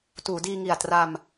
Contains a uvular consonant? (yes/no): no